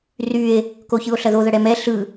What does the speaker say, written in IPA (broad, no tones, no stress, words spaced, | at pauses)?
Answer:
rye̯ | koçɯo̯ɬɐðo ðɐɽɛmɛ ɬɯ